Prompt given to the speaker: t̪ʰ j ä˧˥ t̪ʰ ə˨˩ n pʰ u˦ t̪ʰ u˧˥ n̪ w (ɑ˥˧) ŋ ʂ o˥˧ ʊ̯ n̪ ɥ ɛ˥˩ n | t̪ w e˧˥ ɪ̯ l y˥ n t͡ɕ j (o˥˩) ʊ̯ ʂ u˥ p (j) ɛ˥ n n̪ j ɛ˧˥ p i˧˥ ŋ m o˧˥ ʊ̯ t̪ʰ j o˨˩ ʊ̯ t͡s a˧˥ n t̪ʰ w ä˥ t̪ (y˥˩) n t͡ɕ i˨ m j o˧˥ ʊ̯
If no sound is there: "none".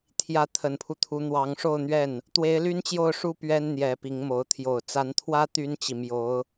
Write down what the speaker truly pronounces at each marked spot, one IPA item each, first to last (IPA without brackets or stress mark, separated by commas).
ɑ˧˥, o˥˩, ɥ, y˥